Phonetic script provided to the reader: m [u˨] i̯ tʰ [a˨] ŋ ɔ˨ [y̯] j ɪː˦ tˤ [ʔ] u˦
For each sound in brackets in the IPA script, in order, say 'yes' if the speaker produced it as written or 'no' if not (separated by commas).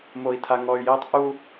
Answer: no, yes, yes, yes